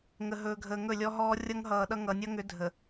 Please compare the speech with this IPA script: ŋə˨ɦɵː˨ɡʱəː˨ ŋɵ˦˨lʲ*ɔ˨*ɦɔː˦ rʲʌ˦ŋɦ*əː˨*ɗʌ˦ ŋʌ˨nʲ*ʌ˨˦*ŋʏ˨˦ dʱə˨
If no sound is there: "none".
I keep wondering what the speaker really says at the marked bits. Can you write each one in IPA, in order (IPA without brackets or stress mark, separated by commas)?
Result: ɔ˦, ʌː˨, ʌ˦